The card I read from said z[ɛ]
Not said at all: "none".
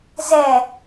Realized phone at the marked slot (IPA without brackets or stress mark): ɛ